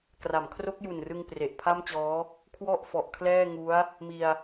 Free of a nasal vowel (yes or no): yes